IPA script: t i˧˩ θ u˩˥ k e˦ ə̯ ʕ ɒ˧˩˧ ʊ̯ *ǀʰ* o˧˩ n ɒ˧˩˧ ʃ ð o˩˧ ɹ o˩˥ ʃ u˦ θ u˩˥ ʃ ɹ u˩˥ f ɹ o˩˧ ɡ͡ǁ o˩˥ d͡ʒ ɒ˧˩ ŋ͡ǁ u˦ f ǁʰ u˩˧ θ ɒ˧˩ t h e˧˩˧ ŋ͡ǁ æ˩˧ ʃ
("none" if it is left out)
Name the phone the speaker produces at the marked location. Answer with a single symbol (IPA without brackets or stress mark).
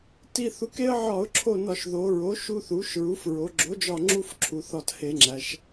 ǁʰ